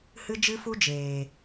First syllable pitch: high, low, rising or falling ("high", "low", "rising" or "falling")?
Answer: high